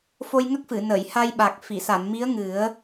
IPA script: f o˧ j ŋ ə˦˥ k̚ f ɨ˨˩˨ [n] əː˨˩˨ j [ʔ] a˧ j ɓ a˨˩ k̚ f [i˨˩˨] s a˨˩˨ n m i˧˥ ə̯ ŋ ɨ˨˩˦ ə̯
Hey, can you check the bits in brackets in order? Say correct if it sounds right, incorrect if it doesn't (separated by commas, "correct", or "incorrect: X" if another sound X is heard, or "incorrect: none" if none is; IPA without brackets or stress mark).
correct, incorrect: h, correct